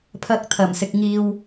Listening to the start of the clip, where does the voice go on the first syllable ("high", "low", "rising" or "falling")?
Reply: rising